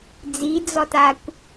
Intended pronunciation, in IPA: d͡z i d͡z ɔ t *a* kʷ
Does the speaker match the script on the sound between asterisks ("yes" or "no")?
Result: yes